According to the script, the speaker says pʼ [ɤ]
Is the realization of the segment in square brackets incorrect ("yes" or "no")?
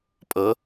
no